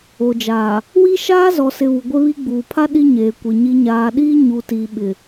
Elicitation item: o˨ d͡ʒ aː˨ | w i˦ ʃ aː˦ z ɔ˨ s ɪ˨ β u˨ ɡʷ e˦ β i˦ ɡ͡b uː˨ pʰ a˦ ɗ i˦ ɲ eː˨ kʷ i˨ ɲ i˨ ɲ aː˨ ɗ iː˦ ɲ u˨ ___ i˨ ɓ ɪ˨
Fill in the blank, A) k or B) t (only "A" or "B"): B